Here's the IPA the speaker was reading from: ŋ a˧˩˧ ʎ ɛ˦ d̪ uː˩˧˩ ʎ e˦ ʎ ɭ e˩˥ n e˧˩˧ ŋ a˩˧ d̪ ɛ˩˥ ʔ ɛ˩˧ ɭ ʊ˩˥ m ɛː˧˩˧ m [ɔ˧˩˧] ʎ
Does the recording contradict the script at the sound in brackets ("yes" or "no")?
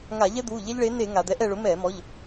yes